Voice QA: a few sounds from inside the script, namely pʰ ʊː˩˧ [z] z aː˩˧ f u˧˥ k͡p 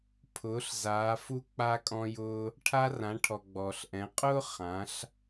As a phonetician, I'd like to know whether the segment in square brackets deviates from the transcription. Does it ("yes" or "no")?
yes